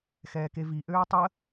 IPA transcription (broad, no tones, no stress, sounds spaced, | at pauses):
x ɛː k e v i ʔ øː tˤ ə